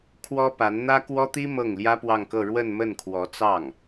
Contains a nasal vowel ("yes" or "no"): no